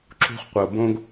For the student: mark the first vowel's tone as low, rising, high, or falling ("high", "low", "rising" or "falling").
high